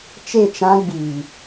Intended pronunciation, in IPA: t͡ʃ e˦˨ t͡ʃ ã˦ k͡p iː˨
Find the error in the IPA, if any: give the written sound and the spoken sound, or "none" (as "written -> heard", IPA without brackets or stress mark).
k͡p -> ɡ͡b